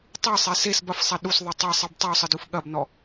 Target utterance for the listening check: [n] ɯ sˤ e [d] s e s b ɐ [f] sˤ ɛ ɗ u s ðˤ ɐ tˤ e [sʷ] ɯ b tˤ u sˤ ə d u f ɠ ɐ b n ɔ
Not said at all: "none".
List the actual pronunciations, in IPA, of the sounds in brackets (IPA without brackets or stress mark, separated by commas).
tˤ, none, f, sˤ